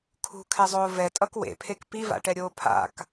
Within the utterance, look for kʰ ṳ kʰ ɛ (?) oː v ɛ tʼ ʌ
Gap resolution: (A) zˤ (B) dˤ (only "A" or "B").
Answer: A